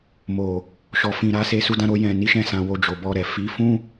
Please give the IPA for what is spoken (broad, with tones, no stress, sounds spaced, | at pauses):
m o˨ | ʃ ɔ˨ f ĩ˨ ɾ a˨˦ s e˧ s u˧ d ã˧ ɾ o˧ j ɛ̃˨ n i˨˦ ʃ ɛ̃˧ s ã˨ w o˧ d͡ʒ o˨ b ɔ˧ ɾ ɛ˨ f i˨˦ f ũ˦